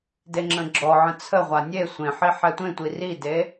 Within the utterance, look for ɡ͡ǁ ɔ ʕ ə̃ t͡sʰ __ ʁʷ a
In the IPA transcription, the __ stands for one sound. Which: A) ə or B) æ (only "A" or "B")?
A